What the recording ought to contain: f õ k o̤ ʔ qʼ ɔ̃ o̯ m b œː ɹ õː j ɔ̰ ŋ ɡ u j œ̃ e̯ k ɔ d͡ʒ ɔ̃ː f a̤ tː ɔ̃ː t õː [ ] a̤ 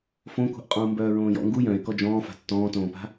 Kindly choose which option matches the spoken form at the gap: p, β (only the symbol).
p